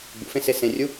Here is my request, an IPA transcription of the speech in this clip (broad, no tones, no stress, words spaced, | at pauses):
ɡ͡bṵfẽse sẽrʲu